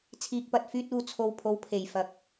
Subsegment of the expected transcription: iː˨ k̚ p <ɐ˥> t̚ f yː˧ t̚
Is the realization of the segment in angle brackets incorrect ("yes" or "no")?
yes